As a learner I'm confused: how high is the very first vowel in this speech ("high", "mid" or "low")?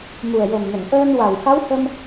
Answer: high